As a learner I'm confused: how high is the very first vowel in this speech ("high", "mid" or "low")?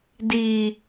high